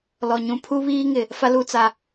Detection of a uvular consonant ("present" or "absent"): absent